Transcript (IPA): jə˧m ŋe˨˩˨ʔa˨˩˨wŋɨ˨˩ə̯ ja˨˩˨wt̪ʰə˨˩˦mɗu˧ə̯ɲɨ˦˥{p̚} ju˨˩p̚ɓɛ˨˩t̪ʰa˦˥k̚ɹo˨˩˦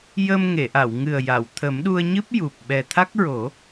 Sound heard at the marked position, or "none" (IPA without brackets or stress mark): p̚